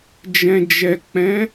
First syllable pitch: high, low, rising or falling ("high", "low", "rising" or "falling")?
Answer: low